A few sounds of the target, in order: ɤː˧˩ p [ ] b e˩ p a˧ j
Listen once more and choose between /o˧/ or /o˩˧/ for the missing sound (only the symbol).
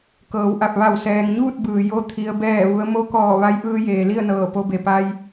o˧